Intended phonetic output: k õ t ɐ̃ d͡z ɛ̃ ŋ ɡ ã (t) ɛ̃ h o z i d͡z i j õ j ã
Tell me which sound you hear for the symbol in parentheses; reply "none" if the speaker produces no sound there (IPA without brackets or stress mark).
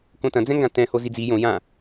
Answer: t